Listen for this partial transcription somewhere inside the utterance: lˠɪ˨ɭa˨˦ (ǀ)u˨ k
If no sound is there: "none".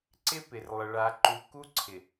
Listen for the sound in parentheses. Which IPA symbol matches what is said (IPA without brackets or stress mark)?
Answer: ǃ